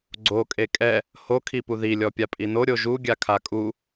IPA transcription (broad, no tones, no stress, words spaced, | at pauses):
ɡ͡ǀo kʼekʼɛ | ho kʰipuði lʲɔpʲapʼino ɾʲoʒu ɡʲakʰakʼu